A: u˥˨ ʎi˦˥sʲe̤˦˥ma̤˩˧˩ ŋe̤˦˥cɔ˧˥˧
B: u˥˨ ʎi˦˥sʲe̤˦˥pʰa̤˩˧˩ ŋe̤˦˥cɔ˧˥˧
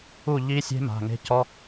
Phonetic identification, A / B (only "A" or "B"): A